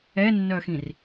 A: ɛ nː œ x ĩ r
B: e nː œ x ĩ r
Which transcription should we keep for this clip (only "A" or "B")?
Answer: A